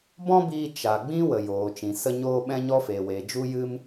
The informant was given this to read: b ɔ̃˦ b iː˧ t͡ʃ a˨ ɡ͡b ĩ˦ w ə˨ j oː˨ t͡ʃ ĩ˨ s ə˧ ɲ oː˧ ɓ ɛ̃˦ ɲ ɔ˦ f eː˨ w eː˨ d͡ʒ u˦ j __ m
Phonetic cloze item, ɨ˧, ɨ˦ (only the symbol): ɨ˦